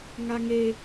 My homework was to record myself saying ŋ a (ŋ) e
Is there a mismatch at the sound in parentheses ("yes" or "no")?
no